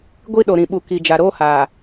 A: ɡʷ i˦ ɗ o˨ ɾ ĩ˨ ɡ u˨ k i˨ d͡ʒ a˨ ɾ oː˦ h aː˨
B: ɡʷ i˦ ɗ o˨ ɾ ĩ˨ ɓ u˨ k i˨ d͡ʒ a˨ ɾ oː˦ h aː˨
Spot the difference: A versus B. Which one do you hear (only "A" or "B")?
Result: B